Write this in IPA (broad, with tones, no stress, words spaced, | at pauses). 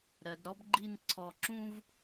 ɾɜ˩˧dɾɔ˥bɡ͡ǃi˥˧n ǀʰɔ˧˩ǁũ˥v